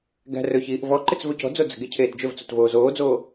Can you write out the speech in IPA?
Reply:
ɡæ̤rɵçiːʔ vɔǃɪt͡s vɵcɔ̤d͡zo d͡zə̤ɡe cʰeːtd͡ʒɵvt͡sot voːzoːd͡zoː

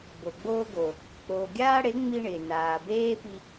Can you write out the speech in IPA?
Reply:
bo˨ɡ͡boː˦ɡo˨ | k͡poː˨ɡʲaː˦ɽe˨˦ ŋ͡mi˦ɳɪː˨ naː˨beː˦ pi˧

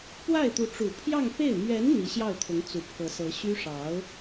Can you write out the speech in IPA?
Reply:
pwa˥˩ɪ̯ t̪u˧˥ʈ͡ʂu˨˩pʰjɑ˥˧ŋpe˥˩ɪ̯ mɥɛ˧˥n n̪i˧˥ɕjɑ˥˩ʊ̯t̪ʰʊ˧˥ŋ t͡su˨˩pʰɤ˧˥sɤ˧˥ ɕy˥ʂɑ˧˥ʊ̯

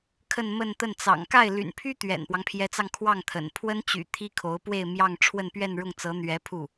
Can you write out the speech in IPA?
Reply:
kʰə˥˧nmə˥˧nt̪ə˥˩n t͡sɑ̰˨˩ŋka˥˩ɪ̯ ly̰˨˩npʰy˥ t̪ɥɛ̰˨˩npwɑ˦ŋpʰjɛ˧˥t͡sɑ˧ŋ kʰwɑ˥˩ŋt̪ʰə̰˨˩n pʰwə˥nt͡ɕy̰˨˩ t̪ʰi˥kʰo˧˥ʊ̯pwe˥˧ɪ̯ mjɑ˥˧ŋ ʈ͡ʂʰwə˥˧npɥɛ˥˧n ɻʊ˥˩ŋt͡sɤ˧˥ n̪ɥɛ˧˥ pʰu˥˩

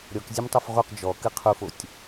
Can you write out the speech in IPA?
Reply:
ɾʲɔk zʲemtˤofʁuq d͡ʒɔ kɨqʰufotʲ

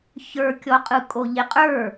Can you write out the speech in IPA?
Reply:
çə˞kʲɔqʼɯ kʼoʎeqʼə˞

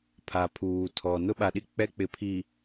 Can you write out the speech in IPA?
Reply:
pʰa˨pʰuː˨tʰɔ˨ nʊ˦ɓa˨ɗi˦ k͡pɛ˦ k͡pɪ˨pʰi˨

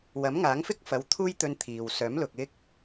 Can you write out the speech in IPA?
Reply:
wɐ˨˥mŋaː˨˥ŋfɪ˥k̚fɐ˨˥w t̪ʰuː˥jt̪ɵ˧n t̪ʰiː˨w sœː˨˥mlʊ˨k̚ ɪ˥k̚

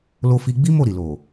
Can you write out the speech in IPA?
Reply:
lo˧fi˧ɡ͡bi˦ mo˦˨ ɾi˨lo˨

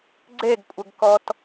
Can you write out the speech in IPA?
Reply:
ɡ͡ǀeɡkʷʼəɡkɔt

